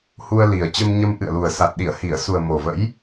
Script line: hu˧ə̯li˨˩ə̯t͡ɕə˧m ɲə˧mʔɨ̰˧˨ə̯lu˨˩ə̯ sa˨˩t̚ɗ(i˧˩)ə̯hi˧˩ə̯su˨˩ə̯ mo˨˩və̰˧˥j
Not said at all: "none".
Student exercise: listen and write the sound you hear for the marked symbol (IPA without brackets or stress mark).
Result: i˧˩